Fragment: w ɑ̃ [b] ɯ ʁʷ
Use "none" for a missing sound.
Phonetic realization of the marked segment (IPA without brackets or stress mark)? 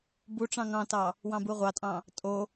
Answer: b